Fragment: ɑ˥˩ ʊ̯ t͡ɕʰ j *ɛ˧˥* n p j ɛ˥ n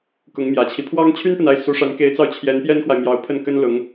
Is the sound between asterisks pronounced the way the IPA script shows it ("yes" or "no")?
yes